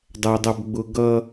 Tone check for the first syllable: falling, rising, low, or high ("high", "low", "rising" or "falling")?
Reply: low